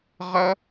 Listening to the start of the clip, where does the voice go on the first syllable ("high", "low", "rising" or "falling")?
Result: high